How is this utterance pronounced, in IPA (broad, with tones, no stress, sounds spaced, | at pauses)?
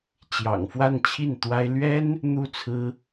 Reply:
t͡ɕ j ɑ̰˨˩ ŋ f w a˥˧ n t͡ɕʰ i˥˩ n t̪ w a˥ ɪ̯ l ɥ ɛ˥ n | n̪ u˥ t͡sʰ ɹ̩˥